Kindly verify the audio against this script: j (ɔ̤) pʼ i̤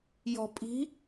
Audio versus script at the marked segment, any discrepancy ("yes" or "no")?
no